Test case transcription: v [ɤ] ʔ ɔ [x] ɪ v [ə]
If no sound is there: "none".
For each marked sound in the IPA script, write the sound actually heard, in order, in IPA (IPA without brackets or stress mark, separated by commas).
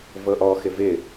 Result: ɤ, x, ɪ